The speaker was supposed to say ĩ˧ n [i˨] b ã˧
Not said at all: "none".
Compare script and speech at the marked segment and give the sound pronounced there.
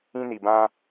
i˨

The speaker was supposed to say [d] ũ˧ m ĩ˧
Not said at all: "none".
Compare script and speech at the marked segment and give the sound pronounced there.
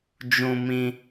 d͡ʒ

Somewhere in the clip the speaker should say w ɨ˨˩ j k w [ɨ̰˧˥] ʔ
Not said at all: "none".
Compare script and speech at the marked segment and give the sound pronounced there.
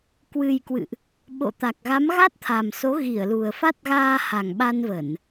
ɨ̰˧˨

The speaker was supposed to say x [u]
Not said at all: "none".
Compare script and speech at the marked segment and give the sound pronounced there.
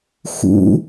ṵ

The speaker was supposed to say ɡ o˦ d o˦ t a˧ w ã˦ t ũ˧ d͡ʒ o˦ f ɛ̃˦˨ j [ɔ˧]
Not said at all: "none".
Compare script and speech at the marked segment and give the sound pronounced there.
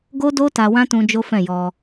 ɔ˧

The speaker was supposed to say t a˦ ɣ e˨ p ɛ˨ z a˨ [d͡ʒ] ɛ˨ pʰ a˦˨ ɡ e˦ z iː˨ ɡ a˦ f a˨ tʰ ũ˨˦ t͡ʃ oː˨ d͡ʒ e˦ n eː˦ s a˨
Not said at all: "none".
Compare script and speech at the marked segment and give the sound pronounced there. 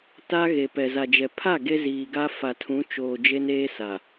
d͡ʒ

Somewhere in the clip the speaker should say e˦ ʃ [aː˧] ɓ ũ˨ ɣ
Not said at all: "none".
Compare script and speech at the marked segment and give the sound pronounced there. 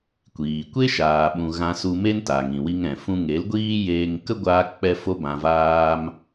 aː˨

